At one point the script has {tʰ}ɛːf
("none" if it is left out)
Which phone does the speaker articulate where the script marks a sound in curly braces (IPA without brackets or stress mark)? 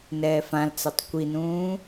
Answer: n